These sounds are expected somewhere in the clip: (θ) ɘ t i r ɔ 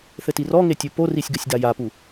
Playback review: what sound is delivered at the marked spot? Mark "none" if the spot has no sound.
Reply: θ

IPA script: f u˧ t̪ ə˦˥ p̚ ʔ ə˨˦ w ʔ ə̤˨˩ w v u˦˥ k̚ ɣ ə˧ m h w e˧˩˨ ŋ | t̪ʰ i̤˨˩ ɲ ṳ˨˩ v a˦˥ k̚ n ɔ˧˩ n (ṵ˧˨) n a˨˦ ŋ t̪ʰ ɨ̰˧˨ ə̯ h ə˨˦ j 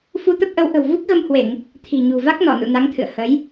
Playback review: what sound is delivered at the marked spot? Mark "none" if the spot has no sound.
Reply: ṵ˧˨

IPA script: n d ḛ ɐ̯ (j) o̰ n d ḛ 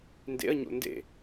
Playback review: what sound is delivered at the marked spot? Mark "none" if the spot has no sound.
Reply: ɲ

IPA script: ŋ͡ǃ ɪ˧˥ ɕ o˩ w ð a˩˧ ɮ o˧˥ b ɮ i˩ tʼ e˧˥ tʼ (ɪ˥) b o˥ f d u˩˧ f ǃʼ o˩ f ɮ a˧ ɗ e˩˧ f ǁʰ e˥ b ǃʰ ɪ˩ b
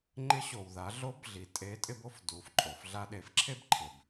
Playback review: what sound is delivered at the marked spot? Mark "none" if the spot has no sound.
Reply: ɪ˥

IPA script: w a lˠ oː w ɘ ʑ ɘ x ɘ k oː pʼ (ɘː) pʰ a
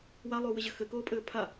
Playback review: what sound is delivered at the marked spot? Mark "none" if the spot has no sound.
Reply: ɘː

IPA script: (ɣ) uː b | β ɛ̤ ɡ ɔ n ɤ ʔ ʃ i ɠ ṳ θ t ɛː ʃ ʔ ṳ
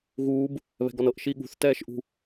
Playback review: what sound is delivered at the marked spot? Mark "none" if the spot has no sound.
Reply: ɣ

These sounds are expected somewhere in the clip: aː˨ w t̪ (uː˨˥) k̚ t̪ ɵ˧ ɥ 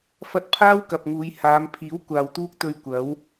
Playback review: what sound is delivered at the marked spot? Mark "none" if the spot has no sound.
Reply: uː˥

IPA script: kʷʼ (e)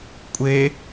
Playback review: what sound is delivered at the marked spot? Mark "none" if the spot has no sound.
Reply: e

